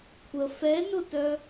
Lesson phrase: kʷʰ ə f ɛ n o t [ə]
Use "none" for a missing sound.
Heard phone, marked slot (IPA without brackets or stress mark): œ